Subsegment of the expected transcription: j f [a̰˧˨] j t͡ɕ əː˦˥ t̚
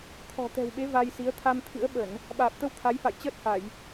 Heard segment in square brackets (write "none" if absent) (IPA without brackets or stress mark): a̰˧˨